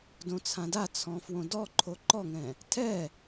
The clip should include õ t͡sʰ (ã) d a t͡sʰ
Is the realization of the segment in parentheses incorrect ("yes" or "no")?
no